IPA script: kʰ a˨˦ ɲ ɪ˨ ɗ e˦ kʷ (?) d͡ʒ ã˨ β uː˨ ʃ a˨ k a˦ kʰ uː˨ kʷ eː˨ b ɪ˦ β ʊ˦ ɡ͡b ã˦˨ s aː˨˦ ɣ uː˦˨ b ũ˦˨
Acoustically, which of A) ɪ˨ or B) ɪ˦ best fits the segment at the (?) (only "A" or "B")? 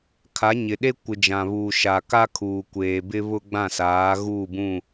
A